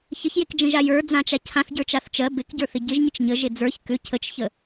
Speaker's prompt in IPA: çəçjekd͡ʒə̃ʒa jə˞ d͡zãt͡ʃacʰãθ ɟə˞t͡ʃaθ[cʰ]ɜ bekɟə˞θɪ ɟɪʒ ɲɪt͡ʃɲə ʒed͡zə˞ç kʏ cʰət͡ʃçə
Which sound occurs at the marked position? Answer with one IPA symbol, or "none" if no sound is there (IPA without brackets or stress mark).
t͡ʃ